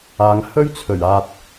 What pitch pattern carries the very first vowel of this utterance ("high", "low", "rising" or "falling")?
low